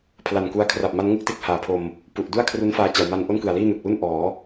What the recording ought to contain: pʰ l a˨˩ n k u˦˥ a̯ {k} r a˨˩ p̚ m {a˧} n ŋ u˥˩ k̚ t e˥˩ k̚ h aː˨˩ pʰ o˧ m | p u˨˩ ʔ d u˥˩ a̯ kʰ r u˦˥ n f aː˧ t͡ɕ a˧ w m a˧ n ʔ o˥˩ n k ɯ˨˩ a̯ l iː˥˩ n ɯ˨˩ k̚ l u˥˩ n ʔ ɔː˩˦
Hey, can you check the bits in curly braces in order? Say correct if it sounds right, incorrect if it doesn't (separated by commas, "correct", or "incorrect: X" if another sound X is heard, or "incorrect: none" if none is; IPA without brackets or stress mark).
incorrect: kʰ, incorrect: a˦˥